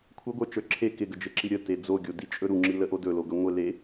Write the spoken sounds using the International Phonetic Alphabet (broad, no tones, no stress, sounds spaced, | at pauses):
kʷʰ ɘ ɡʷ ə˞ t͡ʃ ə˞ ǁʰ e k ɪ ɡ ə d͡ʒ ɘ ǁ i ɾʲ ə t e d͡z o ɡʲ o d i t͡ʃʼ ɵ ɾ u ŋ͡ǁ i l ə ʔ o d ɵ l o ɡ ɵ ŋʷ e l e